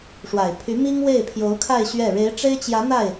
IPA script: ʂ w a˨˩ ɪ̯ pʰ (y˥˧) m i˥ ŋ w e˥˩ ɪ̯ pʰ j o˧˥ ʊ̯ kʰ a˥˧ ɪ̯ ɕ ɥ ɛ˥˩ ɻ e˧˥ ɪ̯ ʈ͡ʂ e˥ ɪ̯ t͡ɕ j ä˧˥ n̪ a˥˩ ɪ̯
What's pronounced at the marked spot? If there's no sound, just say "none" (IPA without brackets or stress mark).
y˧˥